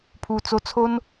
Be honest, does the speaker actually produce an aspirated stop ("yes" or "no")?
yes